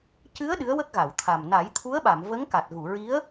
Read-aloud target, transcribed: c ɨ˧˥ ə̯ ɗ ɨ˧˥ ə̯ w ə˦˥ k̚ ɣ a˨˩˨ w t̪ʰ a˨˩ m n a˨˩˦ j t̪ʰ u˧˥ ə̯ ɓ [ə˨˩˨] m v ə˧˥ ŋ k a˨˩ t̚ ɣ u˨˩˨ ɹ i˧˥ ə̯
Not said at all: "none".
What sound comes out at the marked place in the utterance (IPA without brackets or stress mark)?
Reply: a˨˩˨